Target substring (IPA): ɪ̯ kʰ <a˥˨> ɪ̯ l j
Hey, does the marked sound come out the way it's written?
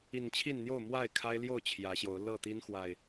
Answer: no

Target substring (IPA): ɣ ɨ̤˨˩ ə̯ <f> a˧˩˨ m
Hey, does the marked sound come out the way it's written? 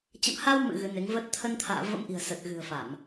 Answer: yes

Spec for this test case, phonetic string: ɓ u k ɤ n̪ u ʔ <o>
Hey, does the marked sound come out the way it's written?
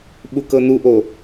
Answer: yes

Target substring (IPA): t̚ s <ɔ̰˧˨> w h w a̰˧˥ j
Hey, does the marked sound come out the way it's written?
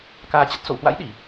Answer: no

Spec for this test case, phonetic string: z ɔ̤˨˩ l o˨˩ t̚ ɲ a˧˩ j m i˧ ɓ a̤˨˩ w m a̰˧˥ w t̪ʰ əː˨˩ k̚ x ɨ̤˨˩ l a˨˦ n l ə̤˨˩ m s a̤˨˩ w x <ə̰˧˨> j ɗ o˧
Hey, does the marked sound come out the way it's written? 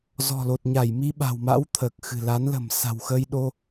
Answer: no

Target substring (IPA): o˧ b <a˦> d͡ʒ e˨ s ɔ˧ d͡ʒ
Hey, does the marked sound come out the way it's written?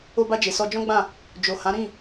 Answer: no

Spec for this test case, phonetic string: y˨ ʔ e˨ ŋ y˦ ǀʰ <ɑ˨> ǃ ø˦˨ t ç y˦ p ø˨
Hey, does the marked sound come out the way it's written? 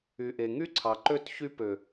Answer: yes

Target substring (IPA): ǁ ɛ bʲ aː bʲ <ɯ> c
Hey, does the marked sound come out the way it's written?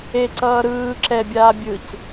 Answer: yes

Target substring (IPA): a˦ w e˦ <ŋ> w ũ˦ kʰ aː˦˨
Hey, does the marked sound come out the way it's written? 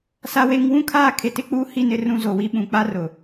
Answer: yes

